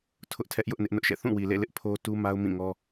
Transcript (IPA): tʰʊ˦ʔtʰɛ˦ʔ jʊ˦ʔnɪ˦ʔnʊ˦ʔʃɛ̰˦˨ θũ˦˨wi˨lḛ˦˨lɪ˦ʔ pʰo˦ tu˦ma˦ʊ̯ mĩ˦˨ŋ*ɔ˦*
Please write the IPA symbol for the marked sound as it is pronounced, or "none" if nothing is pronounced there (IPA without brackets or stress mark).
ɔ˦